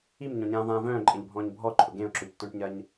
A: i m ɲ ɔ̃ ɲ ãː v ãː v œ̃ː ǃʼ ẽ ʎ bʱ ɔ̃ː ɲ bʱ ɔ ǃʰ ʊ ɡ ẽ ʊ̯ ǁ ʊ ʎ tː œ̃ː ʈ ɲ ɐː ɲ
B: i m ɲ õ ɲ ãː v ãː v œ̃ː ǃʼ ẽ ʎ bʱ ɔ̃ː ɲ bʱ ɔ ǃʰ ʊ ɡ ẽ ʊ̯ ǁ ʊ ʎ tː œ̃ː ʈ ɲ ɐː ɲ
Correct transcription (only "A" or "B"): A